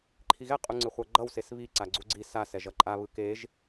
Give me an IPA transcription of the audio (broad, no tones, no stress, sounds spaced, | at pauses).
ǃʰ i ɣ ɛ qʼ u ŋ͡ǀ ɯ χʷ ʌ ɡ͡ǃ ʌ w s e s β i ǀ a ɡ͡ǀ u ɡ͡ǀ i s a s ɛ ʒ ʌ ǃʼ a β ɯ k e ʒ